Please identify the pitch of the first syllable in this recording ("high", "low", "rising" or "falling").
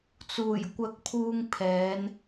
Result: low